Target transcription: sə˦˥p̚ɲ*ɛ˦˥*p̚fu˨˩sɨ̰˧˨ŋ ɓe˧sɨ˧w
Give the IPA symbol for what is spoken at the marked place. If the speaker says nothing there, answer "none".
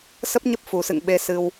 ə˦˥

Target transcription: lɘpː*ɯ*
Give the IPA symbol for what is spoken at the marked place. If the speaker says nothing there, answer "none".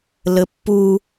u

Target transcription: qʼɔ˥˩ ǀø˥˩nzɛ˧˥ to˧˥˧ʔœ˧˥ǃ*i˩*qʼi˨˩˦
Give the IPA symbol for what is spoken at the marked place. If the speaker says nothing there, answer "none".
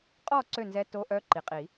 i˩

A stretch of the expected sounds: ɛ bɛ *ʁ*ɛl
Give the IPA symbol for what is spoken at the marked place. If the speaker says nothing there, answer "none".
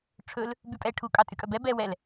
w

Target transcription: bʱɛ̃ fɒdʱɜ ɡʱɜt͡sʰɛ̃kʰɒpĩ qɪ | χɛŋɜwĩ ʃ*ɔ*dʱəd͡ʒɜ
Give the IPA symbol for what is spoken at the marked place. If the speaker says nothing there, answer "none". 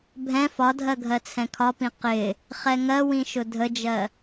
ʊ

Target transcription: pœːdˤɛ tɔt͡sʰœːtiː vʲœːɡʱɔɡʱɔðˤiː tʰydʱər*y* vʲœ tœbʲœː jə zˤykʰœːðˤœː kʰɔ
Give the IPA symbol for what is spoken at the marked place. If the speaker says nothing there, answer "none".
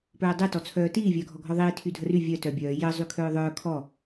y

